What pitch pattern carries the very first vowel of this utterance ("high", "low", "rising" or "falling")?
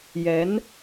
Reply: rising